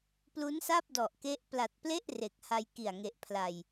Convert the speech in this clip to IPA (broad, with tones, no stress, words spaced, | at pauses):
plu˦˥nsa˥˩p̚dɔ˨˩ʔke˦˥ʔ pla˨˩t̚ple˥˩ʔ re˨˩k̚ha˧jki˨˩a̯ŋe˨˩ʔ pʰla˨˩j